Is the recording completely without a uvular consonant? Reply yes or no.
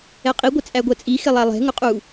no